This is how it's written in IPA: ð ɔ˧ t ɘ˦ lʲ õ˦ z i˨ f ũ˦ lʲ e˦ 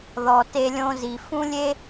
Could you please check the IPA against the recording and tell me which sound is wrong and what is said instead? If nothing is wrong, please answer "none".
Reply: ɘ˦ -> e˦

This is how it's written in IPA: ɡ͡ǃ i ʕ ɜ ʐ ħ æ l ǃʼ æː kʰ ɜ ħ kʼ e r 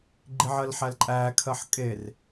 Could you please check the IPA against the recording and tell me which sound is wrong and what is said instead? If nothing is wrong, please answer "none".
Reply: ʐ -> l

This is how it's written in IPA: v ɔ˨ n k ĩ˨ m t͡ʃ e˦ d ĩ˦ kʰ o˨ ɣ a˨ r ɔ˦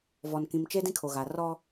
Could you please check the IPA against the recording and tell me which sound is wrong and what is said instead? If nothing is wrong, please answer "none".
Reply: none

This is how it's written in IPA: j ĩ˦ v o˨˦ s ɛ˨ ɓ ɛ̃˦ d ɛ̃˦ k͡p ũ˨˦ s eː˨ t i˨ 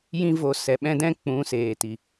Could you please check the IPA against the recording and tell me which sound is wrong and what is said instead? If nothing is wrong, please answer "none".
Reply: none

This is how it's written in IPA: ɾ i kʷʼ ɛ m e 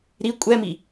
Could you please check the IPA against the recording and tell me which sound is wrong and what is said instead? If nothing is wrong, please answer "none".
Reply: e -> i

